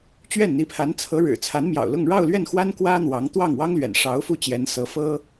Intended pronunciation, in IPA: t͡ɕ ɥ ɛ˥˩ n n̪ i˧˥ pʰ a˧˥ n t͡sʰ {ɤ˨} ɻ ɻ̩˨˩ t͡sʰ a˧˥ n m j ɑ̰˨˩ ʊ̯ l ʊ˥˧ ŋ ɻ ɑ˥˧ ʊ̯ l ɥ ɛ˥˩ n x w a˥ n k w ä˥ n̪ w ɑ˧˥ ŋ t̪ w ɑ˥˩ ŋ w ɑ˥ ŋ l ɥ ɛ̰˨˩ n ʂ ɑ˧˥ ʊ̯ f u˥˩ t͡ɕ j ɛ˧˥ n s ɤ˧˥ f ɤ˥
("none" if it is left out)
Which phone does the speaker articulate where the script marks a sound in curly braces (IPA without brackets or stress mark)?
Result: ɤ˧˥